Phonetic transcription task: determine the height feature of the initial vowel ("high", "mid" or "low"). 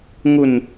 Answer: high